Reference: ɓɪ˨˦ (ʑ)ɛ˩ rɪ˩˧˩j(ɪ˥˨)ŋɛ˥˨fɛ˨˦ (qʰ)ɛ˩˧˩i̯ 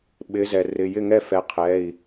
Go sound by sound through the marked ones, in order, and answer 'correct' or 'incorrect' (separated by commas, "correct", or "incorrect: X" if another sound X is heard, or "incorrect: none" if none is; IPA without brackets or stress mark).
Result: incorrect: z, correct, correct